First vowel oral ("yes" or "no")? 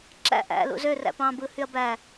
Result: yes